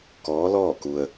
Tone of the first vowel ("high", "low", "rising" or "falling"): rising